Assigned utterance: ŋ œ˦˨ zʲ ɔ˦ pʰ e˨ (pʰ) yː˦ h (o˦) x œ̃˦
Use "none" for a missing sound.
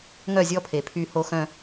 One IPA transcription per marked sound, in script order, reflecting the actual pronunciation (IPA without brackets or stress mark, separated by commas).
pʰ, o˦